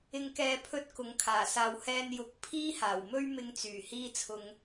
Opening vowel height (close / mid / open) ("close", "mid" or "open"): close